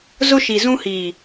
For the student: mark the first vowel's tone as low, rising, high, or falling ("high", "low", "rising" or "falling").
high